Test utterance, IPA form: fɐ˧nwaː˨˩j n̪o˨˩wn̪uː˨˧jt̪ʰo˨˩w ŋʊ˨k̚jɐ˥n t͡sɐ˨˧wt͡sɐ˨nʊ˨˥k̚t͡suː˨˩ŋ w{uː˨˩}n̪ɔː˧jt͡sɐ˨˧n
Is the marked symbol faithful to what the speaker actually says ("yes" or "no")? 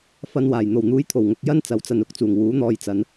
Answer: no